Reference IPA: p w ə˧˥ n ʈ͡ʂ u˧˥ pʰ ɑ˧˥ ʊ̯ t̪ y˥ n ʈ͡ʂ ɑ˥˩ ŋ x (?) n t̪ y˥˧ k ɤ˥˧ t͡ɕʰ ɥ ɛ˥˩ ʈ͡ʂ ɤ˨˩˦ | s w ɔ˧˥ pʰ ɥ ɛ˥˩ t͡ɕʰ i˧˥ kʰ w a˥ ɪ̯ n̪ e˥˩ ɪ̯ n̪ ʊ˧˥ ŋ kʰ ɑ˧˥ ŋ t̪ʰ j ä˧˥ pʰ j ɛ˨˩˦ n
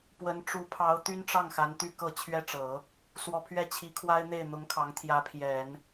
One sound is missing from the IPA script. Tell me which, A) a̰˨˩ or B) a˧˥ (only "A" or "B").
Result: B